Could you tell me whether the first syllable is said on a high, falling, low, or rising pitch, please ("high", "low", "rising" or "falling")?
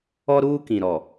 high